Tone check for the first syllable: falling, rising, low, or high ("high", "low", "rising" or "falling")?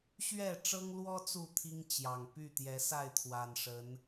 falling